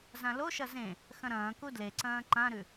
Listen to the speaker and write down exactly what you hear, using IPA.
z ã l o ʃ ɐ z ẽ | x ɐ̃ ɾ ɐ̃ː k u d l e ǀ ɐ̃ː ǃ ã ɾ ʉ

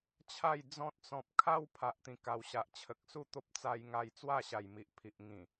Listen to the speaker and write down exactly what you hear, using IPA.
t͡ɕʰ a˥˧ j d͡z ɔ̃˦ t̚ t͡s ɔ̃˨ p̚ kʰ a˦ w pʰ a˨ ʔ t̪ ĩ˨˩ k a˨˩ w ɕ a˨ ʔ t͡ɕʰ ə˨ k̚ s u˥˧ t̪ o˦ p̚ t͡s a˧ j ŋ a˧ j t͡s w a˥˧ ɕ a˨˩ j m i˨ ʔ pʰ i˨ ʔ ŋ ĩ˨˩

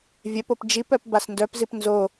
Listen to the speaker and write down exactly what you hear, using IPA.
vʲ œ p o p d͡ʒ i p œ p b a s n d œ p z i p n z o

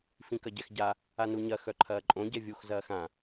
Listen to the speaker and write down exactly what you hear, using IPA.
f ĩ k ɐ ɟ ɛ x ɟ a | a n u ɲ ɐ x œ ǃʰ ɐː ǃʼ õ ɟ ɛ vʲ u x z ɐː x ã

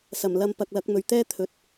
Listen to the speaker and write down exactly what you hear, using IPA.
s ɐ˨˩ m l ɐ˧ m p ɐ˧ k̚ l ɐ˨˥ k̚ m ɵ˨ ɥ t̪ ɛː˥ t̪ʰ ɵ˨ t̚

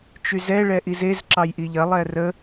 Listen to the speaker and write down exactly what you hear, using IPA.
t͡ʃ y z ɛ ɭ ɛ ʔ i z e z ǁ ɑ j ʔ i ʎ ɐ lˠ ɛ r ə

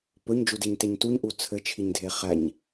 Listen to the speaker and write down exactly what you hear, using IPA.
p ɵ ɲ d͡ʒ u d i ɲ t e ɲ t u ɲ ʔ u t͡sʰ ɘ t͡ʃʰ i ɲ dʱ e χ æ ɲ

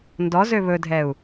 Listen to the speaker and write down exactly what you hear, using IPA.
n d ɔ z ø β ɵ dʱ ɛ u̯

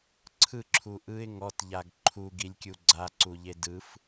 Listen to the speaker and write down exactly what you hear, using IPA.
ǀʰ ɯ ǁʰ u ʔ ɯ ɪ̯ ŋ ɔ t ʎ a ɡ ǃʰ u ɡ i lʲ kʲ u ɡ͡ǀ a ǀ u ʎ e d ɯ f

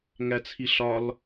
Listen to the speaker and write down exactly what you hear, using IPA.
ŋ æ t͡sʰ i ɬ ɒ l

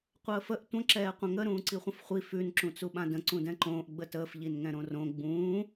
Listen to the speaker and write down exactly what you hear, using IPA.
qʷ əː f ə ʔ tʷ ə̃ ǁ ɛː qʷ ə̃ ŋ ə ɾ ũː ǀ i χʷ ə̃ f χʷ i f ʉ n ǁ ũ t͡s u ɓ ã d ə̃ ǀ ũ d ɛ̃ ǃ õː ʔ ɡ͡b ə t əː f ʎ i n ŋ ɛ̃ ɾ õ r õ ɡ͡b ũː

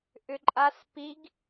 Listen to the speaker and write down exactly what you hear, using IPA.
ʔ ʏ ǃʼ a s p i ɡ

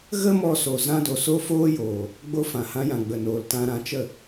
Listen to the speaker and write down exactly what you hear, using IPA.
ɣ ə˦ m ɔ˧ s o˨ z ã˦ d o˧ s o˦ f oː˦ j oː˨ | ɡ͡b o˧ f ã˨ h ã˧ j ã˨ ɡ͡b ə˨ n oː˨ l t ã˧ ɾ ã˧ t͡ʃ ə˦˨

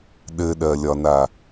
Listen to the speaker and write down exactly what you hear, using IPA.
ɗ ɘ ɗ ɜ lʲ ɒ n a

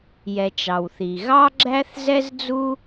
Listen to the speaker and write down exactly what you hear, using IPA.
j ɛ˩ t͡ʃ ɑ˩ w θ i˩ ɣ ɑ˥ ɡ͡ǁ æ˥ θ z ɛ˥ z d͡z u˥

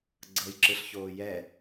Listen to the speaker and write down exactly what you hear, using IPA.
ɡ͡ǀ ɤ j ǁ ɯ ɬ ç oː j ɛ

